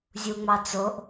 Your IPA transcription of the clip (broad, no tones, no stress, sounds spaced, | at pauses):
zʲ u ŋ͡m ɑ t͡s o ʔ